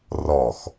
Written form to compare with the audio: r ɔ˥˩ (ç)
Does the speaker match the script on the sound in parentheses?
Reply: no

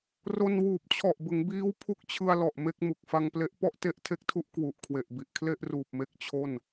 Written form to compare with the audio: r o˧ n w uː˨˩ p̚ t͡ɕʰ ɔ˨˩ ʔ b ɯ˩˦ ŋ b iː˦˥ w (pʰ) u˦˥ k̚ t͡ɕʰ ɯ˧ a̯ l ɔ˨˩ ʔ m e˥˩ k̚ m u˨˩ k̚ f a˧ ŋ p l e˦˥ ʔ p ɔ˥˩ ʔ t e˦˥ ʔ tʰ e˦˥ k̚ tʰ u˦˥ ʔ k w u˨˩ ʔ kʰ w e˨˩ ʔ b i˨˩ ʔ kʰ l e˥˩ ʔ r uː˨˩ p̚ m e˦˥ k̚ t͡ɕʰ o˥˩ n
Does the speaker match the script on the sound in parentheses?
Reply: yes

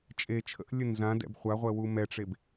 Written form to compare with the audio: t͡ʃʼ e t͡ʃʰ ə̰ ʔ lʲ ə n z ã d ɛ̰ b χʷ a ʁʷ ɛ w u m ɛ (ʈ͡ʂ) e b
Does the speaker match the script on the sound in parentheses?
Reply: yes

